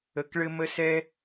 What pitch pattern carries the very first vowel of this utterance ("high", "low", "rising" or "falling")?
low